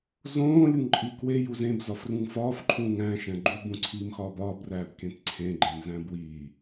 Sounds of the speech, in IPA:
zõːlʲuŋǃʼi kweju zẽbzɒfrũŋ fɒːfǃʰũːŋ æ̃ʃæ̃ ɡ͡ǃubũǀʰiːmxɒːb ɒːbræːbkẽt ǀʰẽɡ͡ǃẽmzæ̃ bwiː

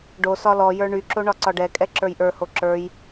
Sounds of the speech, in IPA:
ɖosɒ lɔjə˞ ɳyǁo ɳɒǀɒɖɛkʼɛ ǁə˞jʔə˞ho ǁə˞j

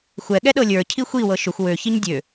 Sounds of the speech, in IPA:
xʷɛɠɛ ɗɤlʲə˞cʰi xʷiwɤ ʃʏxʷ wøçiɲ dʲø

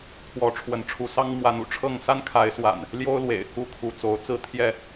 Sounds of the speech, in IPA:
kʰwɔ˨˦ ʈ͡ʂʰwə˨˦nʈ͡ʂʰu˨˦sɑ˦ŋ mwa˨˦nṵ˨˩ʈ͡ʂʰɤ˥˨ŋ sa˦nkʰa˨˦ɪ̯swa̰˨˩n | ljo˦ʊ̯lwḛ˨˩ɪ̯ ku˥˨kʰu˨˦ t͡so˨˦ʊ̯ t͡sɹ̩˥˨t̪ʰjɛ˥˨

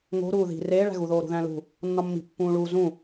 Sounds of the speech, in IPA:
ŋo̤ ɾuːði̤ reːɭæ̤ɣuðoː ɾṳðæ̃lṳ | nːɒmːi̤pːũːɭuː zũ

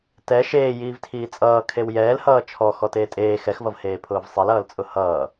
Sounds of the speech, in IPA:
tɛ ʃeːjiːvtʰiː t͡sʼʌː kʰewjɛːlhʌː t͡ʃʰɔ xɔteːtʼeː xɛxvʌvheː pʰʊːvsˤelʌːlt͡sʼʊ hʌː

